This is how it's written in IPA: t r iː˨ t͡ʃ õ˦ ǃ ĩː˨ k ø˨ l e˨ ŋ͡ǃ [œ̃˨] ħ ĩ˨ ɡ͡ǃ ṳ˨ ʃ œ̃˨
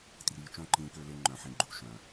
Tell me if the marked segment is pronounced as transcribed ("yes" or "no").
yes